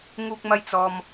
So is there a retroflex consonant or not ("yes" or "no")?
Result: no